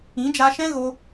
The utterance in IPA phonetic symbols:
ĩ˨˦ d͡ʒ a˧ ʃ ɛ̃˦ ɣ o˧

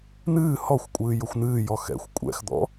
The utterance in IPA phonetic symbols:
n̪ ɨː h ɔ xʷ kʷʼ ɨː j ʊ xʷ n̪ ɨː j ɔ x ɛ̰ xʷ kʷʼ ɛ̰ x d̪ ɔ̰

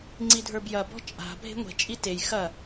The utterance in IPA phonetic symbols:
ŋ͡ǀ i dʱ ə˞ b j ɐ b ɔ̤ t͡ʃʼ a̤ bʱ e̤ ŋʷ e̤ t͡ʃʼ i t e j x ɐ

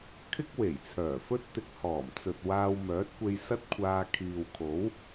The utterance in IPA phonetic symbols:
kʰ ɪ˥ k̚ w e˨˩ j t͡sʰ œː˨˩ f ɵ˥ t̚ t̪ ɪ˧ k̚ h ɔː˨˩ m t͡s ɵ˨ t̚ w aː˧ w m œː˨˥ t̚ kʷ e˧ j s ɐ˥ t̚ kʷʰ aː˧ kʰ iː˨ w kʰ o˨˥ w

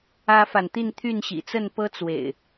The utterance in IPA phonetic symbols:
ä˦ f a˨ n t̪ i˥˨ n t̪ʰ y˥˨ n ɕ ḭ˨˩ t͡s ə˥˨ n p ɤ˦ t͡s w ḛ˨˩ ɪ̯

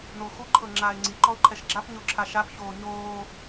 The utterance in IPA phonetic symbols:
n o x u ǃʰ ɤ ŋ͡ǁ aː ɪ̯ ŋ͡ǀ i ǃ ɔ ʊ̯ ǃʰ ɛ ʃ ɡ͡ǁ a p ɲ o ǁʰ a ʃ a p ç oː ɲ oː

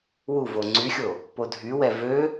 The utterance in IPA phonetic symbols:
w u v o ŋ͡ǀ y xʲ o | p o dʱ y w ɛ v ø

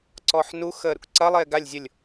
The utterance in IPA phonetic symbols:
ǀ ɔː ħ n u x əː ɾ ṵ k ǀ ɐ lˠ eː ɡ a lʲ zʲ ʊ lʲ

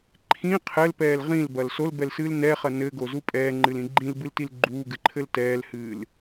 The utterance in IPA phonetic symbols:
ǃʰ ĩ qʰ ɘ l p ɛː l ʁ ĩ l b ɐ l s o l b ɛ l s ɨː l n ɛ χ ɐ n ɘ ɡ o z u pʼ ɛː ŋ͡ǃ ɨ l ĩ ɡ͡ǃ ĩ l b ɨ l t i l ɡ͡ǃ uː ɡ ɨ ǃʰ ɘ l t ɛː l h ɨː l

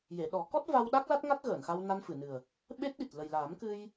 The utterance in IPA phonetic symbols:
j e˨˩˨ ɗ ɔ˨˩˦ k ɔ˦˥ t̚ v a˧ w ɗ a˦˥ k̚ l a˦˥ t̚ ŋ a˦˥ t̚ ɣ əː˨˩˨ n x a˧ w n a˧ n f ɨ˨˩˨ n ɨ˨˩ ə̯ | ɓ e˦˥ t̚ ɗ i˨˩ t̚ l ə˨˩ j l aː˨˩˦ m k ɨ˧ j

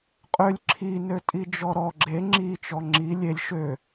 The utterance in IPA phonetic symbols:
qʼ ø lʲ ǁʰ i n ø tʼ i d͡ʒ ɔ ɾ ɔ ɡ͡ǁ e ŋ͡ǁ i t͡ʃ ɔ ŋ͡ǁ i lʲ e lʲ ʃ ø

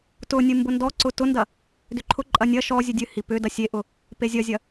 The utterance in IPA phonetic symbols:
t ʊ nʲ ɨ m b ʊ n d ɔ ǀ ʊ t ʊ n d ɐ | d ʏ ǃʰ ʊ ǃʼ ɐ nʲ ɐ ʃ ɔ zʲ ɨ dʲ ɨ h i p ʏ d ɐ sʲ e ʔ ʊ | p e zʲ ɐ zʲ ɐ

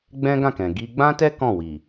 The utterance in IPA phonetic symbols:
ɡ͡b ɛ̃˦ ɡ ã˦˨ k ɛ̃˨ ɡ i˧ ɡ͡b ã˦ t ɛ˦ k ɔ̃˦˨ w i˨

